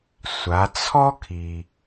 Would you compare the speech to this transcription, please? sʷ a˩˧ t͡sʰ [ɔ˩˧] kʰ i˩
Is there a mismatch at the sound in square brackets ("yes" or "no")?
yes